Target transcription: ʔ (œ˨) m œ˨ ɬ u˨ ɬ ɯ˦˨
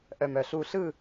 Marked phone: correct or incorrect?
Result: correct